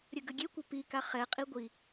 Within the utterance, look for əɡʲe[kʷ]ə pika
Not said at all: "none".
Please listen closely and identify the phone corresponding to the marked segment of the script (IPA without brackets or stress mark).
kʷ